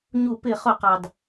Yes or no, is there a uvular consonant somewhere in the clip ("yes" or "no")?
yes